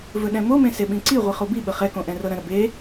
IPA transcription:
v ɵ ɗ ɛ̃ m o m ẽ s e ɓ ĩ ǀ i ʁʷ i χ o b i ɓ ə χ ɛ k õ ʔ ɛ̃ r ɤ ɾ ə̃ ɾ ə b e

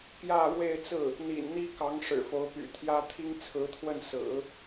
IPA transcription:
p j ä˥˧ ɻ w e˥˧ ɪ̯ t͡s ɹ̩˥˩ | n̪ ḭ˨˩ n n̪ i˥ k ɑ˧˥ ŋ ʂ ɻ̩˨˩ f o˧˥ ʊ̯ p y̰˨˩ t̪ʰ j ä˥ t̪ʰ i˥ ŋ t͡sʰ ɹ̩˧˥ t̪ʰ w ə˥˩ n s ɹ̩˨˩˦

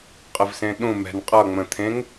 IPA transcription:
qʼ ə v s ẽ ɗ ũ m ɛ̤ n qʼ ʌ ŋ͡m ə̃ t̪ʰ ẽ ŋ

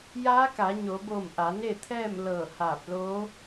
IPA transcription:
j aː˧˥ k aː˩˧ ɲ oː˩˧ b oː˧˩ m ʔ a˩˧ n e˥˨ t̪ʰ ɛː˥˨ m l ɤː˧˩ h aː˧˩ p̚ l oː˧˥

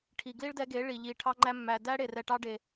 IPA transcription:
ʈʰ i˨ ɡ l i˦ ɭ d ɛ˧ ɡ e˨˦ ɭ i˨ ʎ i˨ ʈʰ ɑ˧ ŋ͡ǃ æ˧ mː æ˨ d æ˦ ɽ e˨ r ɛ˨ ʈ ɑ˧ ɖ e˨

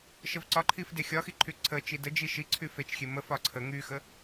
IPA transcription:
ʃ ə v ǀ ɒ ǃʰ i f d e xʲ ɒ x i ǃʰ y ǀʰ ə t͡ʃ i d ə d͡ʒ i ʃ i ǀʰ y f e t͡ʃ xʲ e m ə f ɒ ǀʰ ə ŋ y x ə

